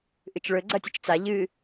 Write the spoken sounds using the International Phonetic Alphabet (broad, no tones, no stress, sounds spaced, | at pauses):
ʔ ɨ t͡ʃ ɭ ɵ ɡ͡ǀ ɐ tʲ ɵ t͡ʃ t͡s a ʎ ɨ